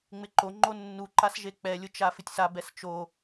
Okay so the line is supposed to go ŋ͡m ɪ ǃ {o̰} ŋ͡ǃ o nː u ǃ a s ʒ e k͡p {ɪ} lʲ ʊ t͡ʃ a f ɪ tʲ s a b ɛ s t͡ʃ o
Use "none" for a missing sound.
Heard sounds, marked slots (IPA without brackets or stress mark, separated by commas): o, ɛ